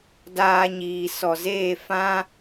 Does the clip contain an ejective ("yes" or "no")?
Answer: no